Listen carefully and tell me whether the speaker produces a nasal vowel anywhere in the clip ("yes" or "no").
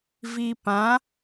yes